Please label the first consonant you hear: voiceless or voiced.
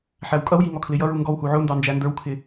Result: voiceless